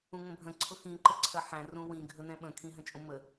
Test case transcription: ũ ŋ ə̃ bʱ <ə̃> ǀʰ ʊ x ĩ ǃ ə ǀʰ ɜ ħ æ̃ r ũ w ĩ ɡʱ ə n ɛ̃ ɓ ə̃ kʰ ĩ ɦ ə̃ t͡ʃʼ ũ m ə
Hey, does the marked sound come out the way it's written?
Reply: yes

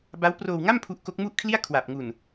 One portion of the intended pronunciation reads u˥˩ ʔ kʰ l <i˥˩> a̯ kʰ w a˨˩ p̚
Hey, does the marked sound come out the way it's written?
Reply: yes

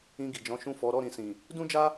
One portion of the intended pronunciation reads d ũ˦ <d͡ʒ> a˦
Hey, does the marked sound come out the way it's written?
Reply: yes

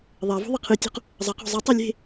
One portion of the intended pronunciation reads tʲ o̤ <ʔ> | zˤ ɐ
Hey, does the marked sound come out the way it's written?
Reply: no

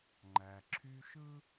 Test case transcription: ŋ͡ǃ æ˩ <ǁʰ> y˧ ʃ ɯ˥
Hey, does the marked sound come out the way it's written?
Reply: yes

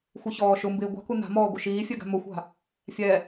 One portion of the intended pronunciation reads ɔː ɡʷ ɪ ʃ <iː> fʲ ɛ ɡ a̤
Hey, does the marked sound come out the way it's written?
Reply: yes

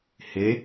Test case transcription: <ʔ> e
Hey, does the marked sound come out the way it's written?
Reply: no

